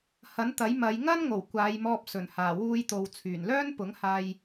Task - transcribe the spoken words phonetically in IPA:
hɐ˨˥nt̪ɐ˨˥jmɐ˨˧j ŋɐ˥nŋo˨˩w kʷaː˨˧jmɔː˧p̚ sɵ˨˩nhaː˨˩wuː˧jt̪o˨w t͡sʰyː˨˩nlœː˥n pʊ˨˥ŋhaː˧j

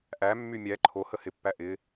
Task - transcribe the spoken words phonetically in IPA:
ʔæmːy mʲæ ǃʰo həhɪpːæ ʔɪ

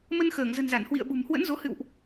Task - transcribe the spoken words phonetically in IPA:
mə˧nxəː˧˩ŋzə̤˨˩nza˧˩n hwḭ˧˨ə̯ɓṳ˨˩mhwə̰˧˥nzo˨˦ hɨ̰˧˨wʔ

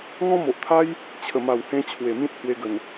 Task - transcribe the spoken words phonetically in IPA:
ŋɔ̃˦mo˨ʔt̪ʰa˦j | t͡ɕʰə˨˩ma˨˩whẽ˧ t͡ɕʰwe˨˩mĩ˦t̚hwe˧ɡə˨˩n

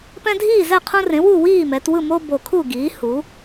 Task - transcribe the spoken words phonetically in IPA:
pɛ̃˦dʱiː˥˨zɛ˥˨qʰũ˦ rẽ˩˥wu˥˨ wiː˥˨mɛ˩˧twɯ˥˨mo˦ bo˨˩kʰu˥˨ ɡiː˩˥hu˩˥

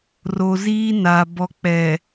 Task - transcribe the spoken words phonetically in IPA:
ro˨ziː˦na˨ bɔ˨k͡pɛ˨

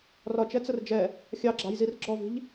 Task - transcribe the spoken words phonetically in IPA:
rɒt͡ʃɛt͡sər d͡ʒɛ | xʲɑɡ͡ǁɑ̤jzir ɡ͡ǁɔvi̤ʎ

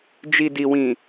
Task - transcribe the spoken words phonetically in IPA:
d͡ʒi˨ di˨wĩ˨

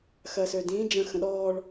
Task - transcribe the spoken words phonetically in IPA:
xɜsødĩ d͡ʒə̃ xə̃ɗɔːɭ

